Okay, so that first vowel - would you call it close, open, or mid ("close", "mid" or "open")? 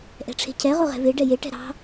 mid